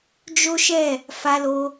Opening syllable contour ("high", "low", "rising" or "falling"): high